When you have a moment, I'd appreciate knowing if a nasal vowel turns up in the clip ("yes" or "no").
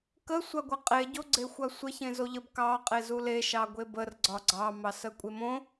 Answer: yes